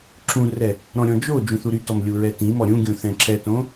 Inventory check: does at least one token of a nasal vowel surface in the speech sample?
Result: yes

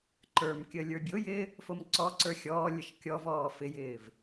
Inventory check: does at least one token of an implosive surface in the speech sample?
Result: no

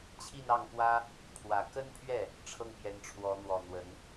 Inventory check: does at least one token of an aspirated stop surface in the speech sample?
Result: yes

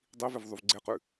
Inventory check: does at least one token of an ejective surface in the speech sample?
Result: no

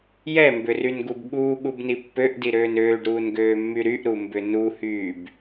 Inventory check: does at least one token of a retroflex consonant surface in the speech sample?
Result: yes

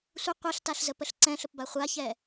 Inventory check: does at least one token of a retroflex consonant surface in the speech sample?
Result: no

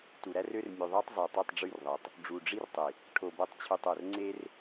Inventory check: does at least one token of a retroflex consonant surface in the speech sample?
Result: yes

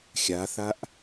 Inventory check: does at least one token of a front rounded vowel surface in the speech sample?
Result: no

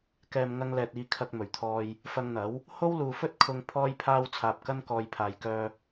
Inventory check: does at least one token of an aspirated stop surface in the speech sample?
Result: yes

